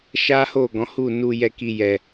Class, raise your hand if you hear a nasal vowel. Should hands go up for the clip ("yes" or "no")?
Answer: yes